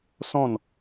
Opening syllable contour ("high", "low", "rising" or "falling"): falling